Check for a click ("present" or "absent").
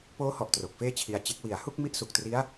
absent